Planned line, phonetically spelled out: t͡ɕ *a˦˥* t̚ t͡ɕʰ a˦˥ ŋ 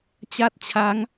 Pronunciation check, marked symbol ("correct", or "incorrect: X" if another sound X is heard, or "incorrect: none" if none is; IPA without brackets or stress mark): incorrect: a˥˩